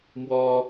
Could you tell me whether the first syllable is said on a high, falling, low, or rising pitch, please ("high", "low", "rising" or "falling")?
high